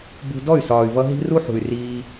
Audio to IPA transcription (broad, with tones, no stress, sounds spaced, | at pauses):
b ṳ˧ d ɔ˦˨ y̯ s ɒː˨ y̯ v ʌ˧ ɦ i̤˦ r u˦ ħ ṳ˨ y̯ r iː˧